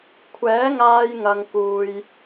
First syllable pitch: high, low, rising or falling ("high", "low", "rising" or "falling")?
rising